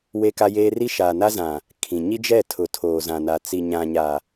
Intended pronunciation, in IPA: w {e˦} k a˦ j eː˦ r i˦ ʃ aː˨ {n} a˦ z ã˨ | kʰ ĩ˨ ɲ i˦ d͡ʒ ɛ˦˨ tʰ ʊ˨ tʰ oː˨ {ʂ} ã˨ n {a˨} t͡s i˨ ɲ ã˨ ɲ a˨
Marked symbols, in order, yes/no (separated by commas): yes, yes, no, yes